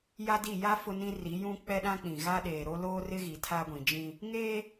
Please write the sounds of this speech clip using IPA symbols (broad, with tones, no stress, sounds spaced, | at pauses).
j a˦ d i˦˨ j a˦ f ʊ˦ n ĩ˦ r i˨˦ j ũ˦ k͡p ɛ˦ ɗ ã˦ k͡p ĩ˨ ɣ a˦ ɗ eː˨ ɾ o˦ l oː˦ r ɪ˦ ɣ i˨ tʰ a˦ ɡʷ ĩ˨ d͡ʒ ĩ˦ | ŋ eː˦